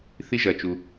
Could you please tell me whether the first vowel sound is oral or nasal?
oral